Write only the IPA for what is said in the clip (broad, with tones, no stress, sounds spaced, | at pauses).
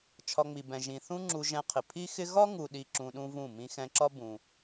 t͡ʃʰ ɒ˧ ŋ͡m i˨ b ɛ̃˨ ʒ ĩ˨ θ ũ˦ ŋ͡ǁ u˧ ʒ ɛ̃˧ qʰ ɪ˨ pʰ i˦ x ɪ˦ ɣ ɒ˦ ŋ u˨ ɗ i˨ ǁ ũ˧ ɗ ũ˦ v ũ˦˨ m ĩ˧ x ɛ̃˧ ǁ ɒ˦ b ũ˧